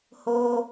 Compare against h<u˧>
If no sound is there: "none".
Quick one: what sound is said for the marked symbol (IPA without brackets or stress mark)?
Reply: o˧